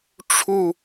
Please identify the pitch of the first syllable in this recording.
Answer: falling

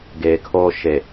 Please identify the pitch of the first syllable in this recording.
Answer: low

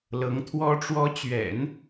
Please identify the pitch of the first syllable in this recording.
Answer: rising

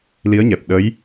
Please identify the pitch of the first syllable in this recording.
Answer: rising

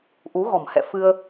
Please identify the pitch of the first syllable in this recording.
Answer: rising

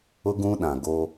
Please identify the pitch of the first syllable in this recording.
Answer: high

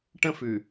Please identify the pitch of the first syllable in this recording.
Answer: high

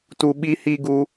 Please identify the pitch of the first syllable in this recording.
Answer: low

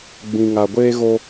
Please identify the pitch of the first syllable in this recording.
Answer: low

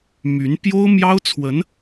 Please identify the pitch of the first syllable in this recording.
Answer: rising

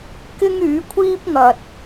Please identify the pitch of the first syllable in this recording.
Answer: high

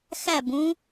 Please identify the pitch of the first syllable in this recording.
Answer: falling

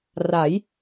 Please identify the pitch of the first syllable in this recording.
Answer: rising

